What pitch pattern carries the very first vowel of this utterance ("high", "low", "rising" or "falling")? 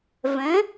rising